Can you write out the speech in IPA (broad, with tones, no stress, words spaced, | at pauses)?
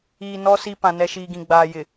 iː˨nɔ˦ si˦ pã˨nɛ˨ʃiː˨ɡĩ˨ ɡ͡baː˨ jɪ˨